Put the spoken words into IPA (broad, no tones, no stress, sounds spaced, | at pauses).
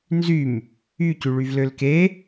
n z y m | y c y ɭ y v l ø l k e